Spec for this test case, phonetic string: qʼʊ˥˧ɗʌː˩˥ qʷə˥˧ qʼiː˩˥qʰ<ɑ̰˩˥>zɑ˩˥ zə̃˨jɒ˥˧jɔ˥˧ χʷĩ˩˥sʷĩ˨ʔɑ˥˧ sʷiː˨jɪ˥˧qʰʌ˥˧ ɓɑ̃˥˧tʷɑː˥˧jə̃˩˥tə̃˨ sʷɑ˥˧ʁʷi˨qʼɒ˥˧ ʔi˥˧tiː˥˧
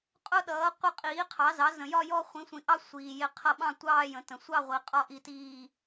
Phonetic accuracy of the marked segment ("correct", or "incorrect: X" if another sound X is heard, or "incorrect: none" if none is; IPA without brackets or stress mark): incorrect: ɑ˩˥